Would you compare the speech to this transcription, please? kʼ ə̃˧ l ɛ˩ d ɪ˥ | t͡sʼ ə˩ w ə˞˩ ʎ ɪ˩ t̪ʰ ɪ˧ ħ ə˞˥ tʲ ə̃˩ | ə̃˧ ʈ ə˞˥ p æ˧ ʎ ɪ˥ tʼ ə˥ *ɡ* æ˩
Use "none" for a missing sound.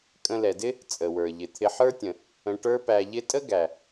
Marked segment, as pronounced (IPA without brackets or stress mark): ɡ